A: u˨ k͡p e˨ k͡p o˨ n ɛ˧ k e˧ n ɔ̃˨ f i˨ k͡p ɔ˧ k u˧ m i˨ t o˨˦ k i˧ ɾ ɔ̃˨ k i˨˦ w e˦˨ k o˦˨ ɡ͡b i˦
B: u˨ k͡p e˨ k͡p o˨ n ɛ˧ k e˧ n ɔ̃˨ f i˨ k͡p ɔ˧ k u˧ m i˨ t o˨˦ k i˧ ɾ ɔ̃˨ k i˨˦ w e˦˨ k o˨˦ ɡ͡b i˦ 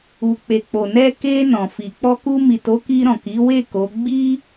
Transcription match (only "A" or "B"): B